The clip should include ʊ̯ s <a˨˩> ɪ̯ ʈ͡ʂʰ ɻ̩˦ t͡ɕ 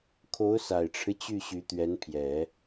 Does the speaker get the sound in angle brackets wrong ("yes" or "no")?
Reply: no